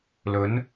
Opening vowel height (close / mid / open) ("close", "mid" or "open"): mid